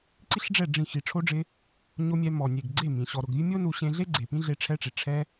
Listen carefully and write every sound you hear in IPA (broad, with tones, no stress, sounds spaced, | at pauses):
ǀ i˦ ɬ ɖ͡ʐ ɛ˦˨ ɖ͡ʐ ĩ˦˨ x i˨ ʈ͡ʂʰ o˧ ɖ͡ʐ ɪ˧ | ɲ o˧ mʲ ɛ˧ m ɔ˨ nʲ e˨ ɡ ɡ͡ǀ e˦˨ m ĩ˨ ɕ ɔ˨ ɾ ʊ˨ ɡ vʲ ʊ˦ mʲ o˦ n u˧ ɕ ẽ˧ ɮ e˦ ɡ͡ǀ e˨ p ĩ˦ ɮ e˧ ʈ͡ʂʰ ɛ˦ ʈ͡ʂ i˨ ʈ͡ʂʰ ɛ˦